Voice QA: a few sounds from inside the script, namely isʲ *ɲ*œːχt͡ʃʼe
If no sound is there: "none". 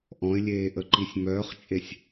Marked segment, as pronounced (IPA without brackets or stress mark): m